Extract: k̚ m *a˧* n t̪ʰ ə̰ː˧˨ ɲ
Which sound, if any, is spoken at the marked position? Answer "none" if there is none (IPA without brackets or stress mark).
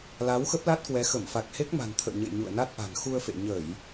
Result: a̤˨˩